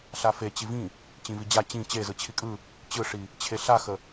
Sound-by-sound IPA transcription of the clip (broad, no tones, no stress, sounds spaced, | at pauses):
ɬ a f e t͡ɕ i v ĩ | t͡ɕ ĩ v i d͡ʑ a t͡ɕ ĩ t͡ɕ e z ɯ t͡ɕʰ i kʼ ɯ | t͡ɕ ɯ ʂ i | t͡ɕʰ e ɬ a x ə